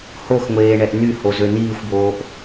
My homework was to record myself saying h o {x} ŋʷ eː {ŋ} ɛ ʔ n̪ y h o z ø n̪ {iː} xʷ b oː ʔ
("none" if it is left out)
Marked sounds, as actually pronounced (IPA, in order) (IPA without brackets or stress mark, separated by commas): x, ɳ, iː